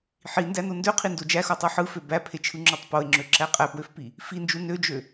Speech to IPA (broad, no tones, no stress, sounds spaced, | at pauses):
ħ i n d æ n o n d ø qʰ i n d o d͡ʒ æ x o tˤ o ħ ɯ f ø b æ pʰ e t͡ʃʰ ɯ ŋ͡ǁ o tˤ p o e̯ ŋ͡ǁ ø ǁ æ qʼ æ p w ø f p i | f i n d͡ʒ u n ø d͡ʒ ø